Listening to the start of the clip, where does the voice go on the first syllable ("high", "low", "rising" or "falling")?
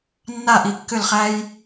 falling